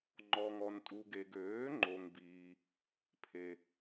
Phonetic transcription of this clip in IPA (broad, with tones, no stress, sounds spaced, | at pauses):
ŋ͡ǃ ɔ˨ ŋ ɔ˨ n tʼ u˨ ɡ e˨ ɡ øː˩˥ ŋ͡ǃ o˨ ŋ b iː˨ | pʰ e˨